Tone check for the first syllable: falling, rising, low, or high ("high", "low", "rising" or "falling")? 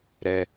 low